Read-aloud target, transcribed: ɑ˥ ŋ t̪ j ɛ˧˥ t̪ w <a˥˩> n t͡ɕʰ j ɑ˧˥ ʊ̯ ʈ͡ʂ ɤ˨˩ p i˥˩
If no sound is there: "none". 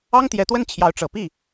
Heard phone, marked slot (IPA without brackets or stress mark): ə˥˩